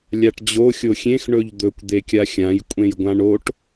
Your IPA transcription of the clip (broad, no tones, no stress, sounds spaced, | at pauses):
lʲ a ʈ d͡ʑ o xʲ o xʲ ẽ x ɳ ɵ ʎ d̪ ɵ kʷ d̪ e kʲ a xʲ ã j kʷʼ ẽ j ɡʷ ã ɳ o ʈ